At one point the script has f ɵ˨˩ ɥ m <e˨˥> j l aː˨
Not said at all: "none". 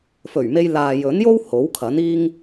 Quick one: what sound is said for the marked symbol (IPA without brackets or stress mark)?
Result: e˧